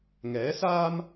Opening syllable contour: rising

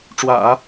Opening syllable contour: low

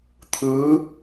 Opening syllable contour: rising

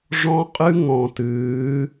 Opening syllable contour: high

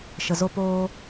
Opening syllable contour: low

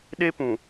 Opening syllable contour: high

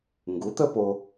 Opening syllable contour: rising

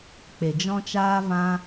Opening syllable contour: low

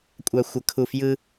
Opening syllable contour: low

